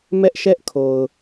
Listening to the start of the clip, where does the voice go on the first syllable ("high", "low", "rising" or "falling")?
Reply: high